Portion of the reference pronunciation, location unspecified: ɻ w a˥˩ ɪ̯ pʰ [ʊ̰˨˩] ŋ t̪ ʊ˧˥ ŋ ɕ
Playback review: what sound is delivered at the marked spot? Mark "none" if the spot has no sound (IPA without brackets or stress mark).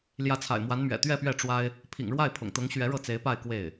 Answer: ʊ̰˨˩